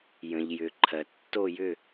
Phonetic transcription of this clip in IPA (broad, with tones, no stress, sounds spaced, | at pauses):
j ə̃˩ ʎ j ʏ˩ ǃʰ ɜ˩ tː o˦˨ j ʏ˦˨